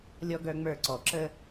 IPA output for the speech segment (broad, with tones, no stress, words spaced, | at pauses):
lʲɔ˦ɡœ˦ŋ͡mə˞˦˨ ǀɔ˨ǁə˦